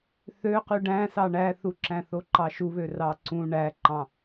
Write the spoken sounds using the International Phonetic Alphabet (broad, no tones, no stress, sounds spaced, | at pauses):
θ ø q y ɖ æ̃ s ɑ ɳ æ θ u ǁ æ̃ θ o ǃ ɑ ʃ u β ø r ɑ ǀ ũ ɳ æ ǃ ɑ̃